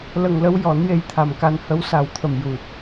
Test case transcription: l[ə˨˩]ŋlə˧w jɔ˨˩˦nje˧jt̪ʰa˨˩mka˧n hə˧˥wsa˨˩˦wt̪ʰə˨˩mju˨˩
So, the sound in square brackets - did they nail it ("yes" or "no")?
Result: yes